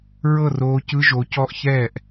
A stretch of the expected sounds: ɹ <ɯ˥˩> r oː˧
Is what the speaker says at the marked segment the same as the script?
no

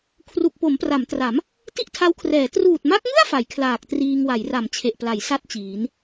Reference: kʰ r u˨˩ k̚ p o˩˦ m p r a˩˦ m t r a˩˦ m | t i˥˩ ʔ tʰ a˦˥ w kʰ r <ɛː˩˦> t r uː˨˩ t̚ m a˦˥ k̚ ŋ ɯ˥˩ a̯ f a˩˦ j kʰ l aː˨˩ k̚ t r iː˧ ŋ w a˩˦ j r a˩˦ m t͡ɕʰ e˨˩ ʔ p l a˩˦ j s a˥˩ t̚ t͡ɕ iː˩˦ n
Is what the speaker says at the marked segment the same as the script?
yes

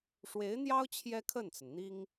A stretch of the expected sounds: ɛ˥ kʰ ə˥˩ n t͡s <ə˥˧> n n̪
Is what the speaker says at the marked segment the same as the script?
no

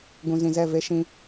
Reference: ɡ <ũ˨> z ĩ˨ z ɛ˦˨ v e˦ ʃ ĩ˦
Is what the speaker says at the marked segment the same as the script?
yes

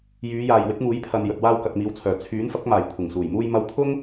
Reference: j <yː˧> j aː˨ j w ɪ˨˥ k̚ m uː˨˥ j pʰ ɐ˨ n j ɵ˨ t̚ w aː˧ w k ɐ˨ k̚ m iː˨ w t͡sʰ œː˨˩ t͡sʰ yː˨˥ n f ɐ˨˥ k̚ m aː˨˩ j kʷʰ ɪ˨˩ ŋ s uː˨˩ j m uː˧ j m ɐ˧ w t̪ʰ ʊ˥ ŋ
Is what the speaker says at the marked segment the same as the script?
no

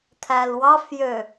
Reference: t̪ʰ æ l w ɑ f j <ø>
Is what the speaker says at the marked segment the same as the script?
yes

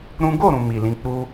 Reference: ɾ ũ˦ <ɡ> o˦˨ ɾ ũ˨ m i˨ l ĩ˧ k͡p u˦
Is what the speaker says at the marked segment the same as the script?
yes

